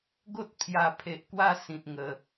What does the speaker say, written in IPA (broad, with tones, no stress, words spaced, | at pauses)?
ɡo˦t̚ pʰja˨˩pʰe˨ʔkwa˧ sĩ˨t̚ŋə˨˩